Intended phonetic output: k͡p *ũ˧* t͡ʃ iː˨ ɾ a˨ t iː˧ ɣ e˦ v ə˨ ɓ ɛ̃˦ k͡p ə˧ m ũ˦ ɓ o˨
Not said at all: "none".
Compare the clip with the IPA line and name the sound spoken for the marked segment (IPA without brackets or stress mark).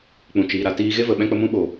ũ˨